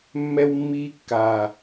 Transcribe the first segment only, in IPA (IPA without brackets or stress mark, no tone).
mː